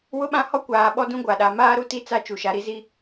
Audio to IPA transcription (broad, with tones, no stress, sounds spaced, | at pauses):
w ʊ˦ ɓ ã˦ h ɔ˦ kʷ aː˨ ɓ ɔ˦ d ũ˦ ɡʷ a˨ ɗ a˨ m aː˦ ɾ u˦ t i˦˨ t͡s a˦ t͡ʃ u˨ ʃ a˨˦ ɾ i˦ z i˦